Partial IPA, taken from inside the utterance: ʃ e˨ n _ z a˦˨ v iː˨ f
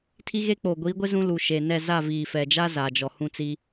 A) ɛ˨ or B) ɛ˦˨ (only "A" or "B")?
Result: B